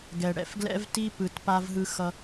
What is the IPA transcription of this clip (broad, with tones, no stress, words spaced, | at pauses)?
ɡɛ˨ ɽɛ̰˦˨fɡlɛ̰˦vti˦ pɯ˨tpa˧vɦɯ˧xʌ˧